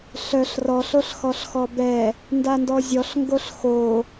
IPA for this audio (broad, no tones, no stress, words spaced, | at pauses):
ɬœɬ rɔɬ oɬxɔɬxɔbɛ | ndandɔzʲɔɬ ŋɡoɬxo